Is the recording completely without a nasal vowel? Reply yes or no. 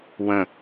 no